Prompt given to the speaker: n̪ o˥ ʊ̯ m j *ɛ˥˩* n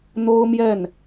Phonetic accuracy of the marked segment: correct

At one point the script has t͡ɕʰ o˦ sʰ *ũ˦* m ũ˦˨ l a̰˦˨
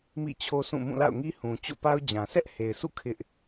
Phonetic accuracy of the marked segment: incorrect: ũ˦˨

